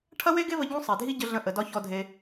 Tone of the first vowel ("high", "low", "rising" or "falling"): high